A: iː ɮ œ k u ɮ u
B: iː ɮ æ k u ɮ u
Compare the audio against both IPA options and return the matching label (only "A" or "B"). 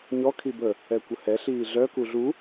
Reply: A